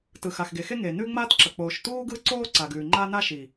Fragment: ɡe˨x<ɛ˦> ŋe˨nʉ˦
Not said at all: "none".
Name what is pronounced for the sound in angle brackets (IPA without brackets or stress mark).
e˦